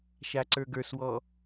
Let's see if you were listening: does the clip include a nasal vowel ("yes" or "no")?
no